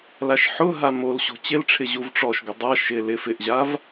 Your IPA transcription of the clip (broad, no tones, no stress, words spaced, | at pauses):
laʃħʊɦa mol ɕo̤t͡ɕɪlʈ͡ʂʰɪ ʑuvʈ͡ʂɔʃɡʊ dˤa ʃɪ lɪ fɪʔʑav